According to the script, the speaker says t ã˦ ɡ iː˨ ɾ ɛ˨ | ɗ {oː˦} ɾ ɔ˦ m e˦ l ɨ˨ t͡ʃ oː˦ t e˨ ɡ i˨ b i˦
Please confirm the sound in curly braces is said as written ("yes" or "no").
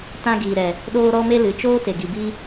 yes